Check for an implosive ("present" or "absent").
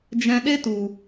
present